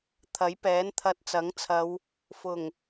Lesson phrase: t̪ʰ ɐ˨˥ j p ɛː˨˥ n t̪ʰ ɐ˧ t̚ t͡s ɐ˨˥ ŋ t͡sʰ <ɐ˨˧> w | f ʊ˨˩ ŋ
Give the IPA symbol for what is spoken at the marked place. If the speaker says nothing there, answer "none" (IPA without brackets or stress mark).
ɐ˨˧